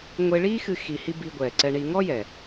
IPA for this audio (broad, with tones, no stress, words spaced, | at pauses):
ŋʷe˧ɭiː˦xɨ˧ xi˧hi˦ bi˧ɡʷɛː˨ ǀɛ˧ɳi˧ ŋɔ˦jɛ˨